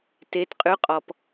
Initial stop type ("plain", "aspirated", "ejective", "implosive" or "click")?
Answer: plain